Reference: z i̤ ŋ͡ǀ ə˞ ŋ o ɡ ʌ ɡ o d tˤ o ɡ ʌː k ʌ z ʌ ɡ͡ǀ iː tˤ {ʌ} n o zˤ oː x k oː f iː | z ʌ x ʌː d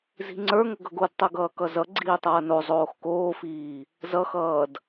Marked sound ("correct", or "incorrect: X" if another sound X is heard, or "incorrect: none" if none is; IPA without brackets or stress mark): incorrect: ʌː